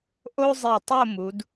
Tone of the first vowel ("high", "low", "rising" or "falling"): high